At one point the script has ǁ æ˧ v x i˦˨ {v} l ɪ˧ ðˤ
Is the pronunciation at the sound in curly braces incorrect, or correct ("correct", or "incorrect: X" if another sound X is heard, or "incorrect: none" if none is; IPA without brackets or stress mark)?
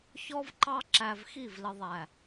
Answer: correct